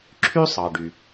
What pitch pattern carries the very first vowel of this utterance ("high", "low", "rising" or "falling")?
high